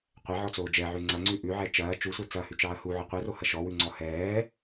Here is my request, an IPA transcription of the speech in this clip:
qʷɛʕɔt͡soː d͡ʒɛʕʉ ŋ͡ǀɐŋ͡ǀʉ ʔʉʕɛ t͡ʃɐː t͡ʃusʷɛ t͡sɐhʉt͡ʃɑːɐ̯ huʕɔ qʷɛrohɐ ʃɔwʉŋ͡ǀɔ hɛː

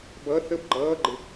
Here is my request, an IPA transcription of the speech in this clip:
bʌ θəb ɡ͡ǃʌːɡ͡ǃɪ

